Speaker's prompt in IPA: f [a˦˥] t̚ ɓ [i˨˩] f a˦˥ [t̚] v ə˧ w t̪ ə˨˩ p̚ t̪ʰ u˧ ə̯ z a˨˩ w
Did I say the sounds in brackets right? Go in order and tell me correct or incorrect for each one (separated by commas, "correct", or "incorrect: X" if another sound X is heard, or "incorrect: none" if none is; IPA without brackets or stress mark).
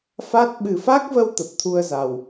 correct, incorrect: ɨ˨˩, incorrect: k̚